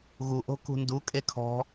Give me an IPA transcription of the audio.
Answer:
ɣuʔo̤ kṳndukʼe kʰɔ̤

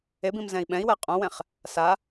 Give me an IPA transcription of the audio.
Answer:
ebĩm zɛ̃i̯ɓɛ̃i̯wɛ qʼõwɛ̃χ | sa

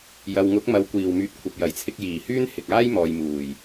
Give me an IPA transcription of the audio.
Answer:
jɐ˨wŋʊ˨˥k̚mɐ˨˧w kʷiː˨˩wmyː˨t̚kʷʰɐ˨p̚ jɐ˨˩jt͡sʰɪ˧k̚jiː˨˩hyː˥n hɪ˨k̚aː˥jmɔː˨j muː˨˩j

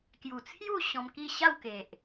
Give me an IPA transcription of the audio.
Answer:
kju˨˩t͡sʰju˥˧ ɕɔ̃˧mki˥˧ ɕa˥˧wke˨ʔ

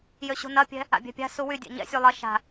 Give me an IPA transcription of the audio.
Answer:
jøɕṳnɐpʲɛ̤ | a̰bʲɛ̤pʲa̤su wydʲɛ̰ ɲɛ̰sʲu lˠɐ ʃa̤

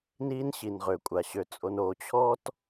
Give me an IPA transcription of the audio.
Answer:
niː˦nɕi˨nʁø˨kʷʼa˨ ɕø˨t͡sʼo˨n o˨t͡ɕʰɔ˦t

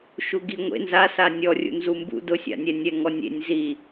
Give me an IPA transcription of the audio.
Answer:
ʃuɡiŋʷḛ nzasa nʲɔrʲṵ nzumbṵ dʊsʲa̰nʲɛ nʲɛŋɔnʲḛnʲ zi

